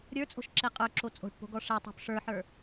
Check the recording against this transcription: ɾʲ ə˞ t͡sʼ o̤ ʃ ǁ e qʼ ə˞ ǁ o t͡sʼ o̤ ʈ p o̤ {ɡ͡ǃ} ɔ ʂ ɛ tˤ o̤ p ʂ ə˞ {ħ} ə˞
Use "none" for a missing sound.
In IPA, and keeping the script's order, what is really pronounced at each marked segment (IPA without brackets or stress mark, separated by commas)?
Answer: ɡ, ħ